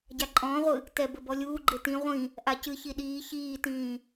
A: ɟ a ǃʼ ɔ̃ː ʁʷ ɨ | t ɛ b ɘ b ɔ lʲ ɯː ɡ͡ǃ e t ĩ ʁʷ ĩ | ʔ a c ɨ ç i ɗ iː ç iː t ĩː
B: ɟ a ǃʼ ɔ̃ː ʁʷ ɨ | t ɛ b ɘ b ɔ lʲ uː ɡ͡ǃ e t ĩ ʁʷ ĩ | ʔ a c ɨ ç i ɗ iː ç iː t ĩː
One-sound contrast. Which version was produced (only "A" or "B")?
B